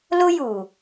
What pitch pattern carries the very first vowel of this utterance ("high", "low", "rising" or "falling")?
high